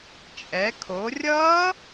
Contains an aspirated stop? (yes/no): yes